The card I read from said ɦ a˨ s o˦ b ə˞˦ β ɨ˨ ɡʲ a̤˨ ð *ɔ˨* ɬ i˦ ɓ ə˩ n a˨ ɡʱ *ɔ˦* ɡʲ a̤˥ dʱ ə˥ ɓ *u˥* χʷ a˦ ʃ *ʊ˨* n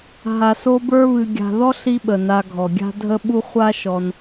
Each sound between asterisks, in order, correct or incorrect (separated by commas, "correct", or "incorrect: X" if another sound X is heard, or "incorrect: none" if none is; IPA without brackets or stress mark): incorrect: ɔ˥, incorrect: ɔ˩, correct, incorrect: ɔ˨